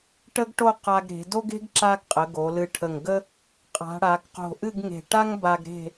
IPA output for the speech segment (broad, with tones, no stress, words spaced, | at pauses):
ʈə˥ɡʈo˥˧ qa˧ɡɾe̤˩˧ do˥ɡe̤˥ɡ ǁa˧ɡqʼə˩˧ ɡo˩˧lɨ˧˩ ʈʰə˧˩ŋɡə˥ | qʼa̤˩˧ɽa˩˧ɡ qo̤˧˩ʔɨ˥˧ɡŋe̤˧˩ ʈa˥ŋba˧ɡ ɾe̤˥˧